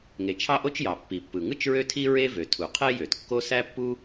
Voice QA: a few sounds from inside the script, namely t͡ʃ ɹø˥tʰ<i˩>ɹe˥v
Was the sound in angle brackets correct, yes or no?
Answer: no